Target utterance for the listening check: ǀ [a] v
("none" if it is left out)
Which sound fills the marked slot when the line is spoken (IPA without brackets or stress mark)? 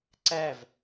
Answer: æ